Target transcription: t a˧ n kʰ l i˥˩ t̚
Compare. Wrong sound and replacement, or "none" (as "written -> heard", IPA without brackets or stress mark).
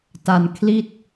none